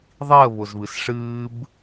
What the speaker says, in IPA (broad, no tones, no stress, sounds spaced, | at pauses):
ðˤ i ə̯ β ʊ z β ɨ s ʂ ɨː b